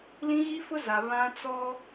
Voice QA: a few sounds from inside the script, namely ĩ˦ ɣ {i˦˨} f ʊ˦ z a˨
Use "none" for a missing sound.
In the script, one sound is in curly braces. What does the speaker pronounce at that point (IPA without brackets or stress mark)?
i˦